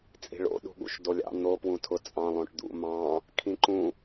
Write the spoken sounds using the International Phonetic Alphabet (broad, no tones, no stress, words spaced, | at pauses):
t͡sʼi̤ɭo̰ ɗṳɠṵʃdolʲɑ̰ n̪o pwũtʰʊ t͡sʼɑ̃ lˠõʈd̪ṵ mɑ̃ | kʰĩǃũ